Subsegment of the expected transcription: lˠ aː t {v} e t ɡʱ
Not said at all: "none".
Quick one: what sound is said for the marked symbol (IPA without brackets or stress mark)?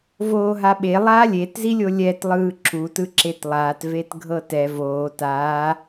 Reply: v